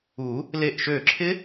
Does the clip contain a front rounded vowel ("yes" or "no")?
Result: yes